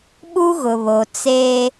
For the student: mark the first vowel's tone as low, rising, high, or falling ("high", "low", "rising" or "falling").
high